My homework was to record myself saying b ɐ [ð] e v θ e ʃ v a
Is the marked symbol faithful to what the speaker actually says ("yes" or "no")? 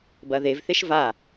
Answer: yes